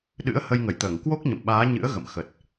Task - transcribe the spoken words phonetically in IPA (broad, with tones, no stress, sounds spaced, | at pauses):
ɗ ɨ̰˧˥ ə̯ h ə˧ j ŋ ə˧˩ j t̪ əː˧˩ ŋ k w o˦˥ k̚ ɲ ə̰˧˨ m ɓ aː˨˦ ɲ ɨ̰˧˥ ə̯ ɣ ə̰˧˨ m x ə˨˩ t̚